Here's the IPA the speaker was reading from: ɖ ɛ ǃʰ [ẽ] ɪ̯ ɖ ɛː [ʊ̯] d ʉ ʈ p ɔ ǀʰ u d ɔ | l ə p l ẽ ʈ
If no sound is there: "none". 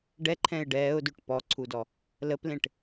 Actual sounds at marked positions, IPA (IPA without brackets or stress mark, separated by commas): ɛ̃, ʊ̯